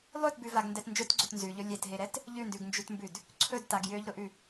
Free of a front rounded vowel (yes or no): no